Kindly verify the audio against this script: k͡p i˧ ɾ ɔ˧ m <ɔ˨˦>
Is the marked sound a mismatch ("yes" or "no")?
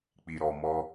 yes